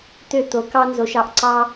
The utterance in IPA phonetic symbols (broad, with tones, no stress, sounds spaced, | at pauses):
t̪ ø˦˨ t̪ o˨˦ k ɑ˦ n z o˧ ʃ ɑ˨ ʔ ǀ ɑ˦